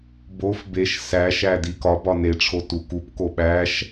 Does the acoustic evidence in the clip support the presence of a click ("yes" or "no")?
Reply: no